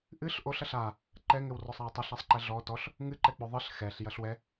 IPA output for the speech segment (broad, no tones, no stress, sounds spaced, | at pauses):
ʔ ɨ ɬ ʔ o ɬ ɐ ɬ a | ǃ ɛ ŋ ɘ w r ɔ sˤ a w tˤ ɐ ɬ a sˤ ǃ ɛ ɮ ɔ t ɔ ɬ | ŋ ɨ ǃ ɛ k͡p o ðˤ ɨ ɬ x ɛ ɬ j ɐ ɬ w ɛ